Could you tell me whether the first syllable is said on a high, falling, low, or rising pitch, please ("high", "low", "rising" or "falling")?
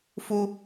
high